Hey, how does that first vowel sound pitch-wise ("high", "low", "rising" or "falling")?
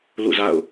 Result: falling